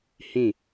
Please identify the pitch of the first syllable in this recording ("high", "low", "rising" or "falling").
falling